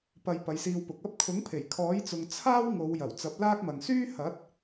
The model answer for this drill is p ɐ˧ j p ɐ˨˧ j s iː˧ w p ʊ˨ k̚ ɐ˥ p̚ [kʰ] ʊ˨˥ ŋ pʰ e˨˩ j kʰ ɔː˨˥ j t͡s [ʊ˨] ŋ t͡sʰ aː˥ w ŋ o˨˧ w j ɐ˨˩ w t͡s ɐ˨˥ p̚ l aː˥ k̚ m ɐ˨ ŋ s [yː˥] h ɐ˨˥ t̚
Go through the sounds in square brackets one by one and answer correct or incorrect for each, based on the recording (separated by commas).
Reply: correct, correct, correct